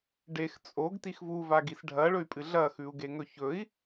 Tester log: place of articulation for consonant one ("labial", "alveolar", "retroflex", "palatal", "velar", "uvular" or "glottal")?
retroflex